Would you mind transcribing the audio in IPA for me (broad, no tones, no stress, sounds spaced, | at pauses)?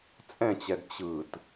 t͡sʼ ɛ̃ t͡ɕ ɛ d t͡ɕ ɯ t